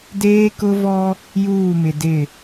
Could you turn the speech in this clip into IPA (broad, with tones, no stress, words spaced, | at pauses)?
deː˦kʊ˦vɔ˦ | juː˦˨mɪ˨dɪ˦˨